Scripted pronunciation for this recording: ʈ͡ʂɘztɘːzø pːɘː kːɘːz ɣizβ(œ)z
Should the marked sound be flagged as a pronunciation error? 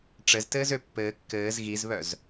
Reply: no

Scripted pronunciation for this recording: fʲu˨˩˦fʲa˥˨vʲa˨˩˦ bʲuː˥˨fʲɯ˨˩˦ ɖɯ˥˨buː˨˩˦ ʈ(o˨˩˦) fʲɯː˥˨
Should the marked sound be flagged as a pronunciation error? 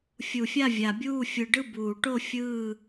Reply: yes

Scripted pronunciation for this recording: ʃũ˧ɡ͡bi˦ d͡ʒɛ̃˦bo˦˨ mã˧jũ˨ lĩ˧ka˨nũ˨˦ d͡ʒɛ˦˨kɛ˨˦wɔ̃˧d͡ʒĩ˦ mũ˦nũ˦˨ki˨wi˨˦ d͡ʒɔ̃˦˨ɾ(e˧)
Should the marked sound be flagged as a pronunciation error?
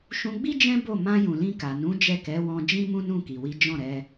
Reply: yes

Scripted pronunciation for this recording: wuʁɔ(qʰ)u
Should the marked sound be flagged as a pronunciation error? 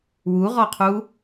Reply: no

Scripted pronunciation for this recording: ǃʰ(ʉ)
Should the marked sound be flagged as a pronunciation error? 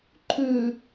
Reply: no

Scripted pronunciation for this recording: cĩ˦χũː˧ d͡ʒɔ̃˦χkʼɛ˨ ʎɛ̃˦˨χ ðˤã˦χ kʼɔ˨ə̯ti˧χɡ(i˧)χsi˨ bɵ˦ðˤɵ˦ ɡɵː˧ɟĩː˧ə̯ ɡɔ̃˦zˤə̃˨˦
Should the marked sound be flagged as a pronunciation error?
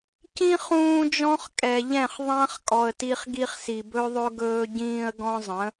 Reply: no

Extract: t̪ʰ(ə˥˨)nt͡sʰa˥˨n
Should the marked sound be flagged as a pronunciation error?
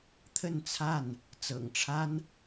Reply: no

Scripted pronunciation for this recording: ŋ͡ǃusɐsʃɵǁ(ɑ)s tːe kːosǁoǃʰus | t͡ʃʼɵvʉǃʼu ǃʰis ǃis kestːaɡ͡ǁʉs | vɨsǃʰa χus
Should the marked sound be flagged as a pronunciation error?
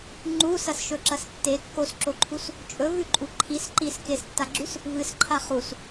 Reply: yes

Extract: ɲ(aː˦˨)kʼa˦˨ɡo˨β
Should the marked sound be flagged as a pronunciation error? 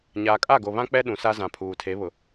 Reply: yes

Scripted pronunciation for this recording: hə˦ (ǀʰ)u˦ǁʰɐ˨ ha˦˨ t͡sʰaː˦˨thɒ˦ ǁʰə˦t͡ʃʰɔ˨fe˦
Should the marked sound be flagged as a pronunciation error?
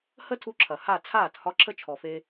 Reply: yes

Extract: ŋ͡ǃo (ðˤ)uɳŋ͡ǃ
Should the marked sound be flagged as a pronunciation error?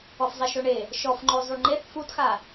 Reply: yes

